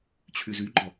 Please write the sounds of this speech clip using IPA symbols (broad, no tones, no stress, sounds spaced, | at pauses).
t͡ɕʰ y z y ɡ͡ǃ ɒ